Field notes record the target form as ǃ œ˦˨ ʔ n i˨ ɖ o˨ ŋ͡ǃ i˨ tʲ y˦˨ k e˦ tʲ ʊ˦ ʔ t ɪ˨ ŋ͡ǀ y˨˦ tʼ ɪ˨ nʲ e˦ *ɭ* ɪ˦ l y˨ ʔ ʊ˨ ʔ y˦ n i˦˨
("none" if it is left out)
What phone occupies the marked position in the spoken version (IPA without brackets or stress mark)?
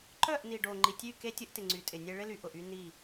ɭ